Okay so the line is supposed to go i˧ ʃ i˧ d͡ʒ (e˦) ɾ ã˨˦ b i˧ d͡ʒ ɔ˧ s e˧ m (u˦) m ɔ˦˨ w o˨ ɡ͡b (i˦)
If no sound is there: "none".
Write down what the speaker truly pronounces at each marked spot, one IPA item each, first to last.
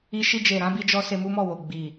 e˨, u˦, i˨

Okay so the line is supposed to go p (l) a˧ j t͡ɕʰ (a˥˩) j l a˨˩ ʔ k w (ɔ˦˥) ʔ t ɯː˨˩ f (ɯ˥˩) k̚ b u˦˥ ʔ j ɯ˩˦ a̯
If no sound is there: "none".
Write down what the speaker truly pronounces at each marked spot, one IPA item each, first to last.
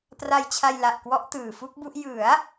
r, a˧, ɔ˦˥, u˥˩

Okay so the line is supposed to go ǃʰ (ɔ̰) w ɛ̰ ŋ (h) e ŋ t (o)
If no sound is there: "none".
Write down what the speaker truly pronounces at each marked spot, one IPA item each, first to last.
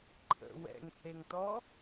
ə̰, h, ɔ

